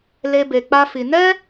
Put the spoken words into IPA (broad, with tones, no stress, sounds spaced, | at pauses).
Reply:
l e˦ b e˧ k͡p a˦ f i˧ n ɛ˦